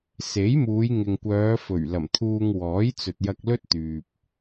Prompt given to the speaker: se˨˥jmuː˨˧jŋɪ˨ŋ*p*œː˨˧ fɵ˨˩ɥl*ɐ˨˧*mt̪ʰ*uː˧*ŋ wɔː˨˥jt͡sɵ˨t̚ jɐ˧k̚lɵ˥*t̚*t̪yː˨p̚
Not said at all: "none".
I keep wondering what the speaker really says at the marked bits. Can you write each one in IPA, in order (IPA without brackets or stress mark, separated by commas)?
kʷ, ɐ˨˩, uː˧, t̚